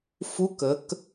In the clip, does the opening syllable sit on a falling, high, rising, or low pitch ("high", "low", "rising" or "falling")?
rising